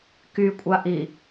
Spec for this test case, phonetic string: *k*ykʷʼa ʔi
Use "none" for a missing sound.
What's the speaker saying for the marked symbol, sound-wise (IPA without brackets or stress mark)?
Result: k